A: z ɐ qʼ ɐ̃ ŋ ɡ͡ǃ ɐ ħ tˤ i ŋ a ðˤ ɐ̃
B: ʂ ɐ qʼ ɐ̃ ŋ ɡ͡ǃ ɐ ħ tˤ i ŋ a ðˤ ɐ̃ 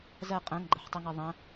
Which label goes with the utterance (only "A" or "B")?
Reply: A